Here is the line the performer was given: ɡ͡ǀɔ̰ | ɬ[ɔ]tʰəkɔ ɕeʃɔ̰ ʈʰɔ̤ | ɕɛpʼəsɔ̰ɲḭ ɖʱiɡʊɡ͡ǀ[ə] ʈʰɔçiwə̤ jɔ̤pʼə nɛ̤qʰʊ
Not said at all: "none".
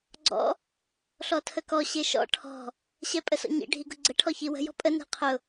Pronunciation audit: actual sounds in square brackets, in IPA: ɔ, ə

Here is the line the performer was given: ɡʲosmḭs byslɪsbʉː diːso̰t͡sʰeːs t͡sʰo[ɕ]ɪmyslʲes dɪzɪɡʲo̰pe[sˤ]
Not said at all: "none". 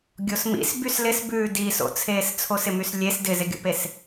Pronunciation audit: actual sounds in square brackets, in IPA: s, s

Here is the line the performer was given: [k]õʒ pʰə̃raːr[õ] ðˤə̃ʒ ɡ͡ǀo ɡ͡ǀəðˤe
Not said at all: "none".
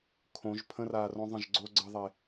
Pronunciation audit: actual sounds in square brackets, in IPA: kʰ, õ

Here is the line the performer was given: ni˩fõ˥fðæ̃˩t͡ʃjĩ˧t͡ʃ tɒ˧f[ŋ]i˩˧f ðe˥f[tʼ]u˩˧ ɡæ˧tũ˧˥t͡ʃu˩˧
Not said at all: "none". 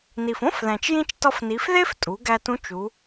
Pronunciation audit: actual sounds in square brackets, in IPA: n, tʼ

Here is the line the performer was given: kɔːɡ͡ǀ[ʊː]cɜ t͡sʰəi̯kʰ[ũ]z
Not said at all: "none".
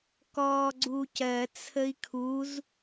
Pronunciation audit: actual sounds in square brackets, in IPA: uː, u

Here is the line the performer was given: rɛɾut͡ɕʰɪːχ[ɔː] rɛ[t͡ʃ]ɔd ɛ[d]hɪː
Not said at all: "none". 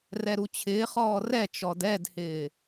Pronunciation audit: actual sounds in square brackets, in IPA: ɔː, t͡ʃ, d

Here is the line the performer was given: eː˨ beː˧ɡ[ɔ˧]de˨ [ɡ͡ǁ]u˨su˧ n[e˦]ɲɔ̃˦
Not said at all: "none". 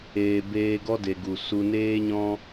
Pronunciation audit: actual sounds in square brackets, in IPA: ɔ˦, ɡ, eː˦

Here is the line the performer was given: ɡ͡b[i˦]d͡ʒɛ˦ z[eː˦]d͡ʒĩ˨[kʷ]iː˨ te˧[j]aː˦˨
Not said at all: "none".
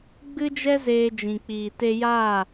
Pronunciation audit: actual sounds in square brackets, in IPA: ɨ˦, eː˧, k͡p, j

